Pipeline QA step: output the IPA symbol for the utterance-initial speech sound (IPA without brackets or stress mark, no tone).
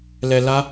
l